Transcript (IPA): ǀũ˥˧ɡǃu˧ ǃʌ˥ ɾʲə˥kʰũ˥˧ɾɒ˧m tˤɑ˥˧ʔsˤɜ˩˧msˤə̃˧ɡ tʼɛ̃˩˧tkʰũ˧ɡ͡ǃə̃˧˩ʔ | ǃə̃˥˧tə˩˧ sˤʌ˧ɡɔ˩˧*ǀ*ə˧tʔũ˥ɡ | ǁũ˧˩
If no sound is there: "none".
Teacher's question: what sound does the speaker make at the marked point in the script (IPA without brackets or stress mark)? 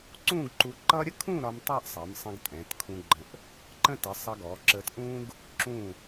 ǁ